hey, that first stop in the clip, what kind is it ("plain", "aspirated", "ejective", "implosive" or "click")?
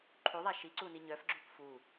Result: click